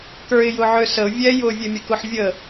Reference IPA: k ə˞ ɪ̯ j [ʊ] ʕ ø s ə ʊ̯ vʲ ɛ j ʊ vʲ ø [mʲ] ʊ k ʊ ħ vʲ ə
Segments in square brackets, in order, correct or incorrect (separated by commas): correct, correct